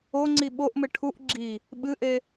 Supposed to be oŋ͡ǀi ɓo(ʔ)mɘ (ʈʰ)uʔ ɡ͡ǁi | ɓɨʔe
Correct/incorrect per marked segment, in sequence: correct, correct

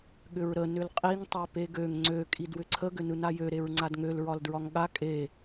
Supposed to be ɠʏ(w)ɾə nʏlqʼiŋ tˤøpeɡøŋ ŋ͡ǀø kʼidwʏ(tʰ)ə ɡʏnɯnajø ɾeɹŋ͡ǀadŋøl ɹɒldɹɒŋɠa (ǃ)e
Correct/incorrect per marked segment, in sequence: incorrect, incorrect, incorrect

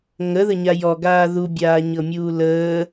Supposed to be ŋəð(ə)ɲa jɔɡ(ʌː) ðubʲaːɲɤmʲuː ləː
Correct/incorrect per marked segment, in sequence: correct, incorrect

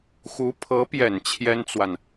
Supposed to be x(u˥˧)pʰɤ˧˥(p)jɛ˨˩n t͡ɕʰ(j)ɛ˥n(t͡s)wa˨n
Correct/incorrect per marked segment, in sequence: incorrect, correct, correct, correct

